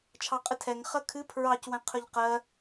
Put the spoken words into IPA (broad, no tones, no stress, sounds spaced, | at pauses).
t͡ʃʰ ɑ qʼ ɨ tʰ ɛ ŋ χ ə kʰ ɨ pʰ ɹ ɑ c w ɛ̃ qʰ ɵ ʎ q ɜ